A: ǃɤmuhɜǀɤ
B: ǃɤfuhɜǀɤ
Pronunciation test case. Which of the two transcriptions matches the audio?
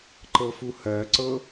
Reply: B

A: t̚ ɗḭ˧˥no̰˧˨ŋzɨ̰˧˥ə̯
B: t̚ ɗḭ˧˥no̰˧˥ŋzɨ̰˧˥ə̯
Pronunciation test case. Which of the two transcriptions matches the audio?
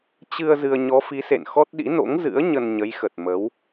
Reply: B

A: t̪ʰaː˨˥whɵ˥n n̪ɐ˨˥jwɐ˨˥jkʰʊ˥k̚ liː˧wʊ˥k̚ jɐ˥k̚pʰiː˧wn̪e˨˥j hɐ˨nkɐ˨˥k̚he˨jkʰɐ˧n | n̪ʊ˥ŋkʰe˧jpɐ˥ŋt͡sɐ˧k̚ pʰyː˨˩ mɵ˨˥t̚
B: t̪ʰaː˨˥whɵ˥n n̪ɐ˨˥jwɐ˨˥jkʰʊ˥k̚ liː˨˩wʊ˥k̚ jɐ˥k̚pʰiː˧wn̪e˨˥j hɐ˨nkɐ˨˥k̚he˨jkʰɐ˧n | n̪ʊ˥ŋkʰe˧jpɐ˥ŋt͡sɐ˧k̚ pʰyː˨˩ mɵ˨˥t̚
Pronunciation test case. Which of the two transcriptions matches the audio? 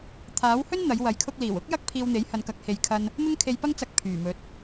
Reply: B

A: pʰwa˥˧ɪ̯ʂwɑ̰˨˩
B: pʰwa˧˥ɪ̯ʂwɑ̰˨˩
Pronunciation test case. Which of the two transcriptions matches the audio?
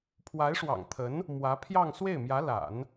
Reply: B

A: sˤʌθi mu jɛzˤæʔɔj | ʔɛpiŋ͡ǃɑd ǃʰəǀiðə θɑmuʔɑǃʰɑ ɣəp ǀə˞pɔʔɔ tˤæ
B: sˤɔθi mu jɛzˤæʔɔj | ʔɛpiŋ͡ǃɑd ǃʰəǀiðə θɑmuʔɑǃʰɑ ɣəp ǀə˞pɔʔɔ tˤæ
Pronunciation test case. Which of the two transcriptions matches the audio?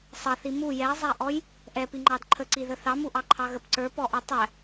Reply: A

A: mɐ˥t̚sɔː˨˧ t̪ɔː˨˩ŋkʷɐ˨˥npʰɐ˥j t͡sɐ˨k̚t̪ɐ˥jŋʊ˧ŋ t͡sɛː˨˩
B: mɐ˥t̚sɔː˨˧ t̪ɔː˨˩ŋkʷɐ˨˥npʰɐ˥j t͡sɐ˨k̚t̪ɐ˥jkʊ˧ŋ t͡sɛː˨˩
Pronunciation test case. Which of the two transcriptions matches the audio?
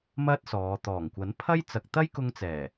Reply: B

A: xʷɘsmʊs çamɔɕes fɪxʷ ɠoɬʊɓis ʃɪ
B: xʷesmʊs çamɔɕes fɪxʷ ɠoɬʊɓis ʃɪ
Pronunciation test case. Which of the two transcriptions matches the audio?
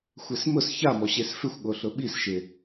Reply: B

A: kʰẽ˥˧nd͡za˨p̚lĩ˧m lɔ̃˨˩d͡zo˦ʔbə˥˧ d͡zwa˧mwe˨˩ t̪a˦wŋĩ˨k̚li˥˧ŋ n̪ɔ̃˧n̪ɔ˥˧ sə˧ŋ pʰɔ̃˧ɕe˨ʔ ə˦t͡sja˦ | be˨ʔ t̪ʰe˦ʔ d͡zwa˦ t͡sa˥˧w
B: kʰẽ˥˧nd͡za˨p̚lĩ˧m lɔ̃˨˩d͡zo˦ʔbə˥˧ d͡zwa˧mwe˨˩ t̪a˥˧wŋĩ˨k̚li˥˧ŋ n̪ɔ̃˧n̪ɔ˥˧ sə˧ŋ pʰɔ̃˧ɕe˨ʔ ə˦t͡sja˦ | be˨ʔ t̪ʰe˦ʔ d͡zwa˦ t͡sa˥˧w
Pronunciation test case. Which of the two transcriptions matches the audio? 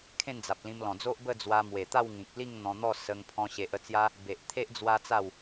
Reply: B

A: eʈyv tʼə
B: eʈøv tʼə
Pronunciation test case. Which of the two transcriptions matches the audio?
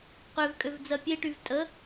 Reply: A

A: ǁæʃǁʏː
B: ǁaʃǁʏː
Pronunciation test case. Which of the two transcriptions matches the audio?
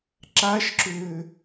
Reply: B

